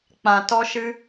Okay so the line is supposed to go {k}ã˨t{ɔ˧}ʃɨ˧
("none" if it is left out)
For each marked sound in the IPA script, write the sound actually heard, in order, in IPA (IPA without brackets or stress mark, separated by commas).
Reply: k͡p, ɔ˧